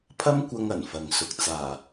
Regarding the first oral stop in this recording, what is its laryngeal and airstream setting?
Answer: aspirated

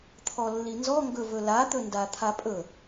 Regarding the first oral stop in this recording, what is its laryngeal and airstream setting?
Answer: aspirated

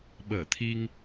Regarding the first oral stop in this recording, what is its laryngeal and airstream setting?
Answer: implosive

